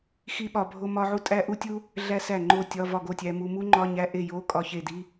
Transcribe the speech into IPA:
xi˥ɓɒ˧ bʱo˥mɒ˥ʕu˥ tʼæ˥ʔu˥tʲu˥ | ɮæ˥sæ˥˩ŋ͡ǃo˥˩ tʲɒ˧˥˧vɒ˥˩ɡo˥˩tʲæ˧ mu˧ mu˥ŋ͡ǃɒ˧˥˧ɲæ˧˥˧ ʔe˥˩jo˧˥˧ kʼɒ˥˩çe˥˩ di˧˥˧

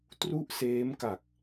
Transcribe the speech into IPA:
tru˥˩ʔseː˦˥mka˨˩k̚

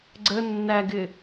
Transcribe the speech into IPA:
ɡ͡ǀə nːæɡɪ

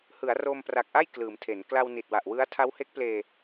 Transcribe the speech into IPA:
hɯ˩˦a̯roː˧mpra˨˩k̚ʔa˥˩j klɯː˩˦mtʰe˩˦n kla˧wni˨˩t̚wa˨˩ʔwɯ˦˥a̯ tʰa˦˥whe˦˥k̚pleː˧

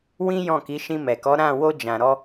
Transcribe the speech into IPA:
wĩ˦jɔ̃˦˨ki˨˦ ʃĩ˧mɛ˨kɔ˨˦ ɾã˦˨ wo˧d͡ʒã˨ɾɔ˧

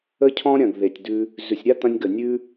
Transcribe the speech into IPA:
ə˦cʰɔ̃˦ɾʲɐ̃˨ɡ ðe˨tʲ dʉ˧ | zʉ˨sʲɾʲa˦t̪ɐ̃˧nʲɡə˨ nʲʉ˦

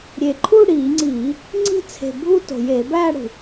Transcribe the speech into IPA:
ɾʲe˨˩ǃʰuː˥˧ ɽiː˧˩˧ŋ͡ǀiː˧˩˧ | ŋ͡ǀi̤˥˧ t͡sʰe̤˨˩ bʱu˥˧to̤˨˩ jeː˧˩˧bæː˥˧ɽṳ˨˩

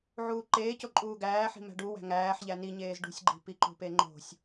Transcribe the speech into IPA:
ʕuːǃeːco ǃʼuːɡæːħi̤mæ̤ ɖuwæ̤ ŋæːħʎæ niɲeːz ɖṳsʲɡ͡ǃi̤ piǃṳpeŋ͡ǃo̤sʲ

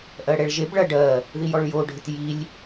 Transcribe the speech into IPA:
ʔɜɽɛɭʒeb ɭɐ ɖɜ | ðijɔɭjoɖʱɪt jilʲ

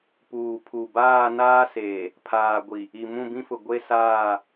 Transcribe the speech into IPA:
puː˨pʰu˨ baː˦˨naː˦seː˨ | pʰaː˨ ɡʷi˨ | i˨mũ˦˨bĩ˦fʊ˨ ɡʷe˦saː˦˨

